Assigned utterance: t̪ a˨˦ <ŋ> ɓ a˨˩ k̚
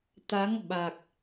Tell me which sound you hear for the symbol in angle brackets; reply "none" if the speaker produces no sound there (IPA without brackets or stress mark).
ŋ